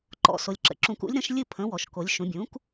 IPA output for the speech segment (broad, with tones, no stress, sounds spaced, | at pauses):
ǃ ɔ̰˩˧ s o˩ lʲ ǁ ə̰˩ ǁ ũ˩˧ k ṵ˩˥ lʲ ɾ ə̃˩˥ ʃ lʲ ɨ˥˨ pʰ ə̃˩˥ w ɔ˩ ʃ k o˩˧ lʲ ʃ ũ˩˧ bʲ ũ˩˥ k